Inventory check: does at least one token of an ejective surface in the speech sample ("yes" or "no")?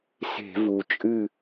yes